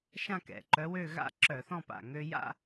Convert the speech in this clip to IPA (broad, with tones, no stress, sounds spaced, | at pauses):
ʃ ã˥˧ k ɛ̰˩ ǃ œ˧˥ w ø˥˧ ɣ a̰˥˧ ǁ œ˧˩˧ θ ɔ̃˥˧ p a̰˧˩ ŋ ø˧ j a̰˥˧